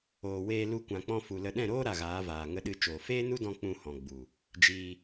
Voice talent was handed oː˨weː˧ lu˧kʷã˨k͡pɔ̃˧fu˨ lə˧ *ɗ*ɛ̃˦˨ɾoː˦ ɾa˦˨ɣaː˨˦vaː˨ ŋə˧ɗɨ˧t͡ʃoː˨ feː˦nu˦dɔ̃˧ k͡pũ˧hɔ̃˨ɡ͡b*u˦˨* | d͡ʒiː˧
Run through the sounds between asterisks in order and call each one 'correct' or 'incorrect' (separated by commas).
correct, incorrect